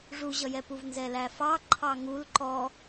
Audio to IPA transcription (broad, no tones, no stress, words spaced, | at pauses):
ʐuʑʌjɛpuv nzɛlæfɑ ǃʰɑŋul ǃɔ